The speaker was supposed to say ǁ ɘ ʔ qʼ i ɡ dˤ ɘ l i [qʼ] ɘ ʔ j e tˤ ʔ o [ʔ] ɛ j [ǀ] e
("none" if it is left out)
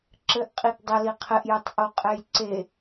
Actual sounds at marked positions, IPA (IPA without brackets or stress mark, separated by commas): qʰ, qʼ, ǀ